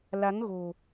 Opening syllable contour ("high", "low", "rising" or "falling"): rising